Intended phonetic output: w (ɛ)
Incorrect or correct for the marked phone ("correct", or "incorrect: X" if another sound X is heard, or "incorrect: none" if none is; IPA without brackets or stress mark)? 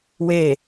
incorrect: e